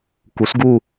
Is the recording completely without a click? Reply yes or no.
yes